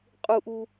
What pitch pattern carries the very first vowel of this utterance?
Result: high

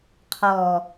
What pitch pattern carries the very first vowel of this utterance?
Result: low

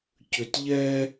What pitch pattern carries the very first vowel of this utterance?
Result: low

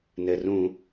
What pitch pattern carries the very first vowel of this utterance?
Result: low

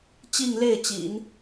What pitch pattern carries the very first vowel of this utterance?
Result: falling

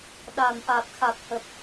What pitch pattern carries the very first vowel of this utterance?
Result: low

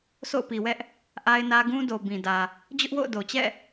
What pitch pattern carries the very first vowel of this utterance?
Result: falling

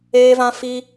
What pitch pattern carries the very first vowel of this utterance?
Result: high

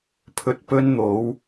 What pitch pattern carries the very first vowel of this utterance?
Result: low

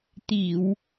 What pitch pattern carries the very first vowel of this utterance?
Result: low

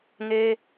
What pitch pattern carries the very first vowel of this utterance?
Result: high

